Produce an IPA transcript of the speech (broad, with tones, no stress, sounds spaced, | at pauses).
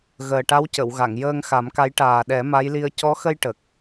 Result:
ɣ əː˨˩ ʈ a˧˥ w c ə˨˩˨ w ɣ a˨˩˨ ŋ j əː˧ ŋ x a˨˩˦ m k a˧˥ j ʈ aː˨˩ ɗ ɛ˨˩˦ m a˧˥ j l i˧ ə̯ c ɔ˧˥ x ə˧ j ʈ ə˨˩ k̚